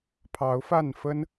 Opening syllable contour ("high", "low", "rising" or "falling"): rising